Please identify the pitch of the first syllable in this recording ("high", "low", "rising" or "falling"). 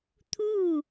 falling